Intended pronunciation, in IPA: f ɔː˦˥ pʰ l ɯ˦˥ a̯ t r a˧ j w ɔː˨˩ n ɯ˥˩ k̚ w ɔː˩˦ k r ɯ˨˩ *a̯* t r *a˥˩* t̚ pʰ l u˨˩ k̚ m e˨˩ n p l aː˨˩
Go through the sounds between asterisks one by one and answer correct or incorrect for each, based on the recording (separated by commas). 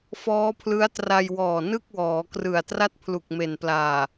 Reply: correct, correct